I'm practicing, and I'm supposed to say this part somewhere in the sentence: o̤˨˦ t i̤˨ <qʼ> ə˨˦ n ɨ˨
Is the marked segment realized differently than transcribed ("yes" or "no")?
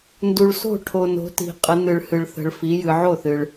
no